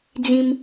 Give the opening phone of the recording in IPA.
d͡z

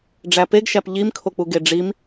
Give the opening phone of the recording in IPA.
ɖ͡ʐ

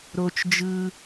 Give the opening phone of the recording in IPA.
ɾ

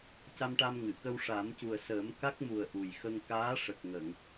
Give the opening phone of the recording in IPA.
c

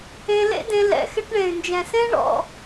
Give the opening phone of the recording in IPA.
ẽ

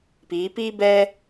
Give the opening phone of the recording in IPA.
p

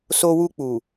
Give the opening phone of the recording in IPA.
s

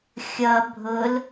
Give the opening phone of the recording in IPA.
xʲ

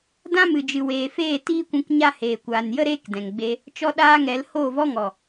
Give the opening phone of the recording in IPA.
d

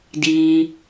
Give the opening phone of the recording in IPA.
d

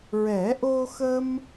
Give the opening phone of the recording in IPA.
ɹ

